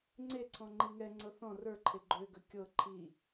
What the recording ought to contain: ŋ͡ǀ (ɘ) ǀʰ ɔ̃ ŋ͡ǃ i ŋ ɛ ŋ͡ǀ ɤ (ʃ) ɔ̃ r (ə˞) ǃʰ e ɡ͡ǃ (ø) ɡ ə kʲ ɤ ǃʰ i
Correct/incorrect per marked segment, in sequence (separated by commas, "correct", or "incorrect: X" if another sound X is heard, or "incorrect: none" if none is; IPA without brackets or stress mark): incorrect: e, incorrect: θ, correct, correct